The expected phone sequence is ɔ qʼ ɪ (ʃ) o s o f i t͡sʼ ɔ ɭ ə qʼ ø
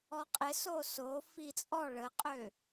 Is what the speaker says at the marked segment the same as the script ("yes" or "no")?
no